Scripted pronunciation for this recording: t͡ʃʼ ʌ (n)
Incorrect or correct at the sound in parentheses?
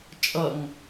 incorrect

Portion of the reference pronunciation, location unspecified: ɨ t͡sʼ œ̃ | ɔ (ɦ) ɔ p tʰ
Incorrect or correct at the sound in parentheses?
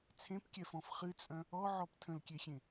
incorrect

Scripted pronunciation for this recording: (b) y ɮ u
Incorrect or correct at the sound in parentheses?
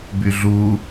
correct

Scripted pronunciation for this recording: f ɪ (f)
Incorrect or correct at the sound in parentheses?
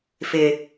incorrect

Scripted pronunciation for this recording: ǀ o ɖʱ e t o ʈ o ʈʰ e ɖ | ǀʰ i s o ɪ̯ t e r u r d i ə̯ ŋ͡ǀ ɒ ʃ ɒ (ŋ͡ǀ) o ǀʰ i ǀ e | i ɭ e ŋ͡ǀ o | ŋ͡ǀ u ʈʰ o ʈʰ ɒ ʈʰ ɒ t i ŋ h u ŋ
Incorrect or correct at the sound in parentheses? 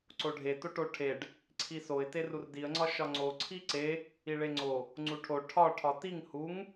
correct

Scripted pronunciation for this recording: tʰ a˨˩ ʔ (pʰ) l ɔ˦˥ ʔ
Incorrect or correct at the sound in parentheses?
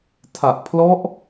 correct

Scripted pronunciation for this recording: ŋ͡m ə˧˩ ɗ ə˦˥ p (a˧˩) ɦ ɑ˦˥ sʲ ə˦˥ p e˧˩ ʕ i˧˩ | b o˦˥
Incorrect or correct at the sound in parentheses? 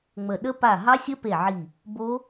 correct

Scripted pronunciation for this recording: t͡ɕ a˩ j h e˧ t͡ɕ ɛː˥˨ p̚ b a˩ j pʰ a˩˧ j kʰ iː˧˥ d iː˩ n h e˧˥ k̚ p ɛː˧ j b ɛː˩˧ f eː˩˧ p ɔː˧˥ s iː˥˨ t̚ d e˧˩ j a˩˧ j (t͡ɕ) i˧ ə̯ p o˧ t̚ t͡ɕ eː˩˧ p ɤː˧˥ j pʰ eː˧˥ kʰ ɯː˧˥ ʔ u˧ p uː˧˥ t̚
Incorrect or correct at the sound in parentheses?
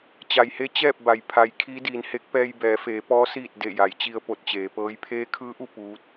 correct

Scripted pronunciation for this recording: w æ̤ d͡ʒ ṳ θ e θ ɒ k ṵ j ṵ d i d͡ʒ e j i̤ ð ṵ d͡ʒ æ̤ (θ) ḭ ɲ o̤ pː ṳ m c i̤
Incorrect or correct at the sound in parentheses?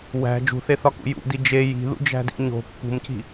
incorrect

